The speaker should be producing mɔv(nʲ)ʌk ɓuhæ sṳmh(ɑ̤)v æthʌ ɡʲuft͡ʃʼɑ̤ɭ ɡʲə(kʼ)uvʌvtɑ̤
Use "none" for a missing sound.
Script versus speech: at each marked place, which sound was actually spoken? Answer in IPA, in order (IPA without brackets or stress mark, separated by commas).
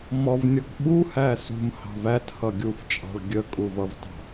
nʲ, ɑ̤, kʼ